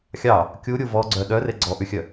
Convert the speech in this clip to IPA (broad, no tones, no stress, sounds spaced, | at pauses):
xʲ ɑ | kʲ u ɾʲ u v ɔ ɡ͡ǀ œ ɗ œ r e ɡ͡ǀ ɔ ʔ ʉ xʲ œ